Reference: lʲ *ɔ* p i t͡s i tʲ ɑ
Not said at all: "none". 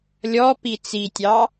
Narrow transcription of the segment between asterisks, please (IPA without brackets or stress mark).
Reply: ɔ